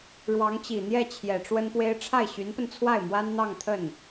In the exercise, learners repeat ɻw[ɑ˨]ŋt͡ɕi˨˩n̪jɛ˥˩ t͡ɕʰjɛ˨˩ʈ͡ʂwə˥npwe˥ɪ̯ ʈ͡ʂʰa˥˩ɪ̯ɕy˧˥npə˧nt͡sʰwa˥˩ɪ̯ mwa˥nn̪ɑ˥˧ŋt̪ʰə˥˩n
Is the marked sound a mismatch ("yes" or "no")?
yes